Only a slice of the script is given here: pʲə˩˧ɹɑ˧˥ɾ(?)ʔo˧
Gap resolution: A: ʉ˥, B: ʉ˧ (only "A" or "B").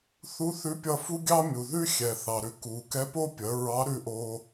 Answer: B